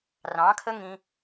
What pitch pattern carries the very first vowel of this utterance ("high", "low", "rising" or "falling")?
rising